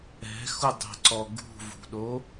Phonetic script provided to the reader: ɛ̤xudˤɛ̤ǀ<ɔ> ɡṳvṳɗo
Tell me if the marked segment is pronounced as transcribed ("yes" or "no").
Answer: yes